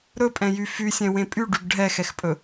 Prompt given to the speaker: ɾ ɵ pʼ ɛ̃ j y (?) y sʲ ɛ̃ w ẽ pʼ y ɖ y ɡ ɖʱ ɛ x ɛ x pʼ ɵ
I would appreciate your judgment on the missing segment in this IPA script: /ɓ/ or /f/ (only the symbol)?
f